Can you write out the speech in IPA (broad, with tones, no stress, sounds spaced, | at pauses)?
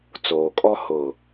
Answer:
t͡s oː˨ kʼ ɔ˦ h ʊ˨